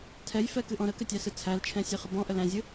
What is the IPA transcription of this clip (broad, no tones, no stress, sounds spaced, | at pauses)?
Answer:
tʰ ɛ j f ɛ k ɨ ʔ ɔ̃ ɾ ə k ɘ tʲ æ s ɯ t͡sʰ æ l t͡ʃʰ ɛ̃ sʲ ɨ χ ə b ɔ̃ ʔ ə l æ̃ zʲ ɨ